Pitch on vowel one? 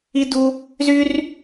high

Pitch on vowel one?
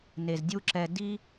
low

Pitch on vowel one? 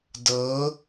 rising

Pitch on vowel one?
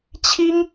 high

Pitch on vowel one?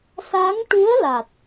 rising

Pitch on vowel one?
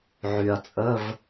low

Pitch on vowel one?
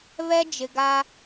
high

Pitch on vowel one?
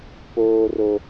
high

